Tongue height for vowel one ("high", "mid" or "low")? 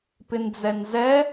high